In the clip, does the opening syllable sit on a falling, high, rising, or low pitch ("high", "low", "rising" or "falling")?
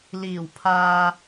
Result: low